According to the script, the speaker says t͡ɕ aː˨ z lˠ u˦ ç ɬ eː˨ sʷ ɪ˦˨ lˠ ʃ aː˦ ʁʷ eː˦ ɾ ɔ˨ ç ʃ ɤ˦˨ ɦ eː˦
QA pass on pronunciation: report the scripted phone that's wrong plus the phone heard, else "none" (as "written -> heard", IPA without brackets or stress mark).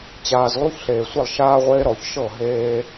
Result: none